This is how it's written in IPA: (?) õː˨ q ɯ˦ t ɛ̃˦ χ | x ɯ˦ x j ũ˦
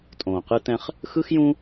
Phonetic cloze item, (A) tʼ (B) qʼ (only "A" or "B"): A